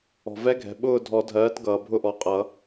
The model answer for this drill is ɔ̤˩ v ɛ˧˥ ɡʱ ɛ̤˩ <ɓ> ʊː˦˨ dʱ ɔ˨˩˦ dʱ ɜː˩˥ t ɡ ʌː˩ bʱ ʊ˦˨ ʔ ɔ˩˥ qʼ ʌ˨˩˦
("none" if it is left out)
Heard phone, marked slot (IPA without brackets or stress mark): ɓ